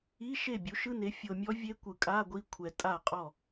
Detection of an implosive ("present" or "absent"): absent